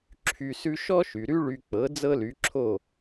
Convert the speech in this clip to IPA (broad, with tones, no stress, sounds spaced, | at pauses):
ǁʰ y˧ s ʉ˥ ʃ ɔ˥ ʃ y˩ ɾ y˥ ɭ y˧ k͡p ɤ˩˥ d͡z ɤ˥ l y˩˥ ǁʰ o˥˩